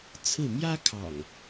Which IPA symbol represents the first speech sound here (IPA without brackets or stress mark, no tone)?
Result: t͡sʰ